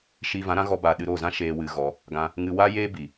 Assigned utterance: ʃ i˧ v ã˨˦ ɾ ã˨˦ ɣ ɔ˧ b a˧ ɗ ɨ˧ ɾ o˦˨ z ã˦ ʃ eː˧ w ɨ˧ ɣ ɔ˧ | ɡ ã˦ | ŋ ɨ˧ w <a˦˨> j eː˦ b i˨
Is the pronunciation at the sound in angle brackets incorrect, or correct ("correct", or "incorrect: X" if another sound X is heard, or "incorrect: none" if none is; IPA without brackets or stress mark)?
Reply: incorrect: a˦